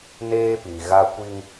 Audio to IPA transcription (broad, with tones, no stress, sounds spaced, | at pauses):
n eː˦ p i˨ ɣ a˦ kʷ i˦ ŋ